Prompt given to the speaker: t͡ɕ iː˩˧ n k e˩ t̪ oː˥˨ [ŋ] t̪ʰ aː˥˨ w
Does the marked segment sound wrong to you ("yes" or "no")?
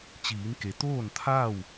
yes